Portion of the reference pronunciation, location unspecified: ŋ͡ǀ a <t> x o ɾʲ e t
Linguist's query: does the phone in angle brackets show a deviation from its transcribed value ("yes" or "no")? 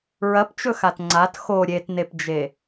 no